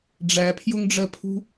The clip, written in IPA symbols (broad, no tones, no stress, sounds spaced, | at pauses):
ɖ͡ʐ æ pʰ j ʊ ŋ ɖ͡ʐ ɜ pʰ ṳ